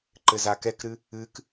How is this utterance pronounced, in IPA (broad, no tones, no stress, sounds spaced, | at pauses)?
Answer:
ǃ ɘ z a k ɛ k ɾ ɨ | ɨ k